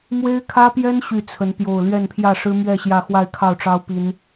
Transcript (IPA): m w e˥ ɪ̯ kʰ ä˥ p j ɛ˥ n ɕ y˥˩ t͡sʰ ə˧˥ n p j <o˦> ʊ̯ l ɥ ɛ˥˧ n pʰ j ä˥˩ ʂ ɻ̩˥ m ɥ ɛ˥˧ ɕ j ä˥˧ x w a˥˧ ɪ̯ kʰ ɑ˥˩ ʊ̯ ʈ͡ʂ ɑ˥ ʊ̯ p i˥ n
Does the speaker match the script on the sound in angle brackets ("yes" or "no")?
no